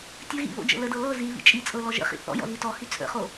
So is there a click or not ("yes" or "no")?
no